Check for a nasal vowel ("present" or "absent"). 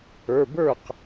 absent